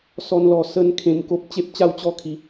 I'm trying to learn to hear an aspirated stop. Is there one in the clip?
yes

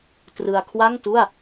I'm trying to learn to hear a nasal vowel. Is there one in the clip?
no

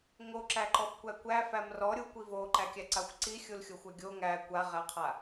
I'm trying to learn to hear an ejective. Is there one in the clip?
no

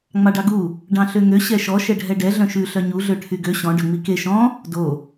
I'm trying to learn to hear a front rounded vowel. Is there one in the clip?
yes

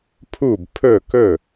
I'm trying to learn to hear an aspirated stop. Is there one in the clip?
yes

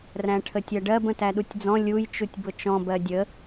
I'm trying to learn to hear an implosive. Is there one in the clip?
yes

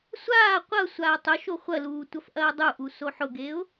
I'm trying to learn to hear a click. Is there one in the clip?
no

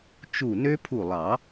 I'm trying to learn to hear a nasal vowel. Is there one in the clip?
no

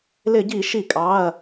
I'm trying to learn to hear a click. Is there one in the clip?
no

